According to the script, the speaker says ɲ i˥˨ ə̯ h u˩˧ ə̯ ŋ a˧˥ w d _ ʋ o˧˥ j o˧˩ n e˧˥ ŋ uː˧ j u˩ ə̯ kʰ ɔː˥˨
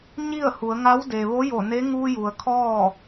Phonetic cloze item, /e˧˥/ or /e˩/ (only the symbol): e˩